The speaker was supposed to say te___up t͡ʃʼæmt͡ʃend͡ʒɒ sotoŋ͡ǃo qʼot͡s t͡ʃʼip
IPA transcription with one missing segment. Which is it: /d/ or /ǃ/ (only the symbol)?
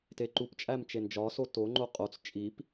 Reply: ǃ